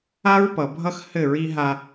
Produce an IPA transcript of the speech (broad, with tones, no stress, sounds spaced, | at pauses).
a˦ ɹ p ʌ˨ bʱ ʌ˦ x h ɘ˦˨ ɹ i˦ ɦ a˦